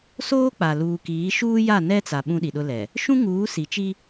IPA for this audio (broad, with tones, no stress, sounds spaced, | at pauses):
s oː˦ k͡p a˨ l uː˨ k iː˨˦ ʃ uː˦ j a˦˨ n ɛ˦ t͡s a˨ ɓ ũ˦ ɗ i˨ ɗ ʊ˦ l ɛ˨ | ʃ ũ˦ ŋ uː˨˦ s i˨ t͡ʃ i˦